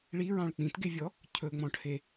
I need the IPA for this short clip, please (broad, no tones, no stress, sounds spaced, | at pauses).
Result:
ɭ i ɹ ɑ̃ ɭ k͡p ĩ t ɡ e vʲ ɔ | cʰ ɵ ŋ͡m ɔ̃ ʈʰ e